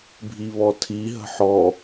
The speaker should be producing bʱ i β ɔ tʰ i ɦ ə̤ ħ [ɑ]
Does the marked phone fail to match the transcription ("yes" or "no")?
yes